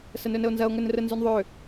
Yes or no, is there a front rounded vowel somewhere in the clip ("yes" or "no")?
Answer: yes